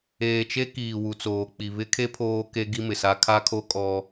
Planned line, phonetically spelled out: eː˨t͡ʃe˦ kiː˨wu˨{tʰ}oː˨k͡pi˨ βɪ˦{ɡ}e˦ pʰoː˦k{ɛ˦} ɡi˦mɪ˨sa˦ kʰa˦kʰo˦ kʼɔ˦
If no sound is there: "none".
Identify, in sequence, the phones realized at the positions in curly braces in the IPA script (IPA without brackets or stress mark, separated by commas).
t͡s, kʰ, e˦